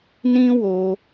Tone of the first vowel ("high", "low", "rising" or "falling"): high